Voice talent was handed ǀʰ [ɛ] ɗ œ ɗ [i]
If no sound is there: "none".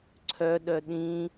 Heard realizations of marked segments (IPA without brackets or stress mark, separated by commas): œ, ĩ